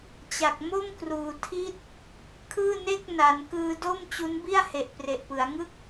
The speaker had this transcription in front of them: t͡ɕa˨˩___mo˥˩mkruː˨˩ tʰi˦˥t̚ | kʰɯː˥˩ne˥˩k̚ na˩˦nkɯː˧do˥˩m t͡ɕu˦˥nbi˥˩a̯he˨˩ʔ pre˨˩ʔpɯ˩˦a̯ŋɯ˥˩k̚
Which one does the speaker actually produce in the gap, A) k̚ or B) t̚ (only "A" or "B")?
A